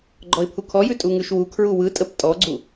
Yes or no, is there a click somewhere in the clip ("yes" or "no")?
yes